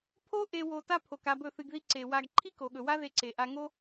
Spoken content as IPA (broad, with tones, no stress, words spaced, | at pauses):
pʰo˦ ʔe˧ wo˧ta˦pʰo˨k a˧bɵ˦˨θɨ˧ɡði˦ ǀe˨wa˧ɡ ǃʰi˦ko˨ɠɵ˨wa˦ ðe˧ǀe˨ʔa˧ŋo˦